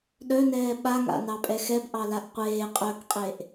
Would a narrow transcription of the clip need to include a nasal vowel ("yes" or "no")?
no